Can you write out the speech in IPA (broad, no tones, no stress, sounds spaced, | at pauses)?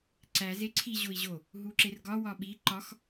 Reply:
ǀ æ z e ǀʰ i ʑ o i̯ ʑ o | ɦ u ǁ e r ɡ ɒ w ɒ ɓ i ǃ ɒ x